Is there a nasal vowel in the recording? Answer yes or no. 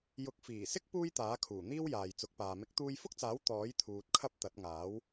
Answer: no